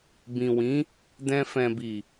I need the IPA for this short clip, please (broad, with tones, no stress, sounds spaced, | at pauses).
b ĩ˨ w ĩ˨˦ | d ɛ̃˧ f ɛ̃˨ b i˨